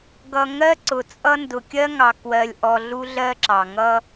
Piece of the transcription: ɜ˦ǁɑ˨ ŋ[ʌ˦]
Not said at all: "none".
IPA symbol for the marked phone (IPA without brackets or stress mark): ʌ˦